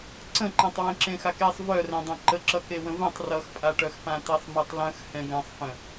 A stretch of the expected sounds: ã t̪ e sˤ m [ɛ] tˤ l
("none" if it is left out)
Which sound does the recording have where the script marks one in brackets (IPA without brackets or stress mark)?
ɛ